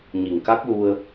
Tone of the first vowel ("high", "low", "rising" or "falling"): low